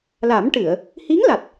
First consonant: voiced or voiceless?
voiced